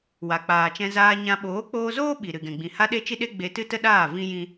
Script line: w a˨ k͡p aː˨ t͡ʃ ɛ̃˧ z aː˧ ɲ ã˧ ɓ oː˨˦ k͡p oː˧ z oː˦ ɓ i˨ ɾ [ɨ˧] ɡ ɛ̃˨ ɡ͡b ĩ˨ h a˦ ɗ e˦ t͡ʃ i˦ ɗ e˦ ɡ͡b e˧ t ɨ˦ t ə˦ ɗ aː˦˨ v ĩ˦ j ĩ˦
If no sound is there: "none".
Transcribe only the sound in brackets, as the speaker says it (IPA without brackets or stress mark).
ɨ˨